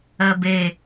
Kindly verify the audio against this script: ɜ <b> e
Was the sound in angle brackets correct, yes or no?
yes